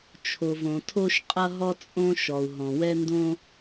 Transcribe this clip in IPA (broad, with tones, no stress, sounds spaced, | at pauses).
t͡ʃʰ o˩ v õ˩ tʰ o˥ ʃ qʼ ʌ˥ ɦ ɔ˥ t͡sʼ õ˥ ʃ ɔ˩ u̯ ɦ ɔ̃˩ w ɛ˥ n d õ˥